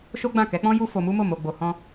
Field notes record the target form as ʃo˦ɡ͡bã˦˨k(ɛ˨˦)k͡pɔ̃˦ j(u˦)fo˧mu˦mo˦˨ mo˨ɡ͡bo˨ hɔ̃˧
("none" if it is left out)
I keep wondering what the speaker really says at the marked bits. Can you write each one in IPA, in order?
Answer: ɛ˨˦, u˦

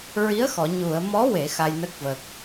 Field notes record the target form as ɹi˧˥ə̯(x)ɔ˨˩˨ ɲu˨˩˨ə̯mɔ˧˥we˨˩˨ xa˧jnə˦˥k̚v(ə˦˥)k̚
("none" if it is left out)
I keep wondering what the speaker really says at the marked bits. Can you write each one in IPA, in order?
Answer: x, ə˨˩

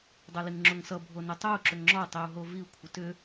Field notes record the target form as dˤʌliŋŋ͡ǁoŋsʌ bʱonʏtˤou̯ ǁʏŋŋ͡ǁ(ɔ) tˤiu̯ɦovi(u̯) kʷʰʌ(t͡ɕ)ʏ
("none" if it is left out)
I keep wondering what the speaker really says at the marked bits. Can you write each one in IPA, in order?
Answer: ɔ, u̯, t

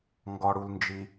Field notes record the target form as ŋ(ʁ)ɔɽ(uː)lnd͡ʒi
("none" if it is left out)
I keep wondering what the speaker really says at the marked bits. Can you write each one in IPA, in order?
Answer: ɡ, u

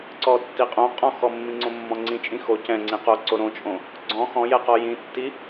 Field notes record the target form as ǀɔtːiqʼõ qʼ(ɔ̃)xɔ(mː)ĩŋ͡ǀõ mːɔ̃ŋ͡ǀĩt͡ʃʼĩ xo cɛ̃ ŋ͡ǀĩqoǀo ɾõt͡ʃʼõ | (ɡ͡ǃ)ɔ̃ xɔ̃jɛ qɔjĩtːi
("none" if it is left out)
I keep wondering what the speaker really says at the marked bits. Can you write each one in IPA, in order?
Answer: ɔ̃, mː, ɡ͡ǀ

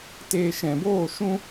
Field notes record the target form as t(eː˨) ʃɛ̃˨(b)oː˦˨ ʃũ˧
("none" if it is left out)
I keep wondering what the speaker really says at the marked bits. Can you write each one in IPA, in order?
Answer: eː˨, b

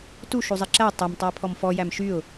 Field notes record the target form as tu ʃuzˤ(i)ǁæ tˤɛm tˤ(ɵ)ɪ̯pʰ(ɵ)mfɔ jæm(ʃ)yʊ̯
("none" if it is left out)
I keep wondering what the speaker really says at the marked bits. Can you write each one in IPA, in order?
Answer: i, ɵ, ɔ, ʃ

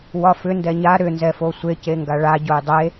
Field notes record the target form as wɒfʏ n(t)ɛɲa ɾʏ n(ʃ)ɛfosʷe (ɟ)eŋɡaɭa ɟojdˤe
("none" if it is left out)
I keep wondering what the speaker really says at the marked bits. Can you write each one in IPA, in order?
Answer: d, z, c

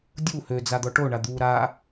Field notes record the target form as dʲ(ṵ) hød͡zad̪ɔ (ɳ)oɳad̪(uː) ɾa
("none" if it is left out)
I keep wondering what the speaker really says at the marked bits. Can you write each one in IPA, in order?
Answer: u, ʈ, uː

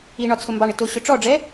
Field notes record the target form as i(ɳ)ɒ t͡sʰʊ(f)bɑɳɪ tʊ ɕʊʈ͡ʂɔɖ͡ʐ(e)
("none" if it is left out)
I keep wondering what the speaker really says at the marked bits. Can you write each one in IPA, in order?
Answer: ɳ, m, ɛ

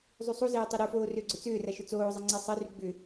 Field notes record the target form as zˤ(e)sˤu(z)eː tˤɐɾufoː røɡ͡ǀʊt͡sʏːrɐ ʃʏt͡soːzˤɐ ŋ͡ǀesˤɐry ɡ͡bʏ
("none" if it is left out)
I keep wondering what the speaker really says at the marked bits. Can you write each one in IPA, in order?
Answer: y, z

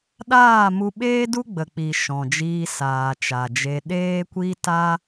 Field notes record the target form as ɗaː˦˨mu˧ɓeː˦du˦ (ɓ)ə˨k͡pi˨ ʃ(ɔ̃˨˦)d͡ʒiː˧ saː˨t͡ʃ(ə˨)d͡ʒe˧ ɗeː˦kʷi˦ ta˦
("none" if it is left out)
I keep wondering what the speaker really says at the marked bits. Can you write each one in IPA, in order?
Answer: ɡ͡b, ɔ̃˨, a˨

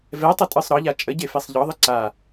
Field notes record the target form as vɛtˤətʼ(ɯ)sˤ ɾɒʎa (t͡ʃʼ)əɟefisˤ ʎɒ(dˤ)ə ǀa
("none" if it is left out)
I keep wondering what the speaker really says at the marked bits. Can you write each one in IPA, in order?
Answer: ɯ, t͡ʃʼ, ðˤ

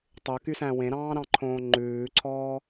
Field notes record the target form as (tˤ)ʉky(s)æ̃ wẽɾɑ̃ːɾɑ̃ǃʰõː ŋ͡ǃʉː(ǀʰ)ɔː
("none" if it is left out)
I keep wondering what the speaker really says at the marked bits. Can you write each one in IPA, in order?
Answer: tˤ, s, ǀʰ

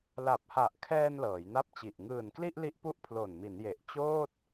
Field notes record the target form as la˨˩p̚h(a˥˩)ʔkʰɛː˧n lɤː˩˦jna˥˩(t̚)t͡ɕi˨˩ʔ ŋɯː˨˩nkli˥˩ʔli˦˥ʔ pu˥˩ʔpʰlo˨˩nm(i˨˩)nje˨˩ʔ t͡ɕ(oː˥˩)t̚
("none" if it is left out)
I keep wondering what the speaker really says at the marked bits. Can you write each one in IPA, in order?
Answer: a˨˩, p̚, i˩˦, oː˥˩

